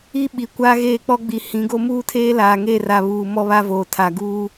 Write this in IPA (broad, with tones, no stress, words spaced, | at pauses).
i˦ ɓi˨ kʷaː˦ɣeː˦˨k͡pɔ˦ɡ͡bi˨˦ hĩ˨˦ɡo˦ muː˦tʰeː˦laː˨ŋe˦˨ ra˨ βuː˨ mɔ˦βa˦voː˨ tʰa˨ɡuː˦